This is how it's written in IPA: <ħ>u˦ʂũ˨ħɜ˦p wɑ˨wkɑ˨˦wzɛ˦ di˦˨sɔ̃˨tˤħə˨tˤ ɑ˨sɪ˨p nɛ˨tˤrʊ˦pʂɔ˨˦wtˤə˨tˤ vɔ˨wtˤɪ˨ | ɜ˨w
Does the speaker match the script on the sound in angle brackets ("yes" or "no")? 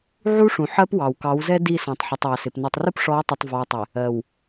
no